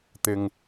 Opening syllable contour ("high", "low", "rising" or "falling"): low